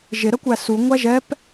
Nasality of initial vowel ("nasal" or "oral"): oral